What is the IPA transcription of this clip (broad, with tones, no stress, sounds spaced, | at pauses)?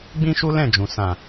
ɡ͡b ĩ˦ ʃ u˦ l ɛ̃˦˨ d͡ʒ ũ˨ s ã˨